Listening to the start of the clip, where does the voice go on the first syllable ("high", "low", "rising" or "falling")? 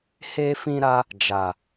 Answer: high